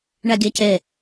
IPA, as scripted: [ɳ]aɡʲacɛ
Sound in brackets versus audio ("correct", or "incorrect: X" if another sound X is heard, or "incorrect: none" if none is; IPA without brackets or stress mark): correct